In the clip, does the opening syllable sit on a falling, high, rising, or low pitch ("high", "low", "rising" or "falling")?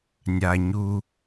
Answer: low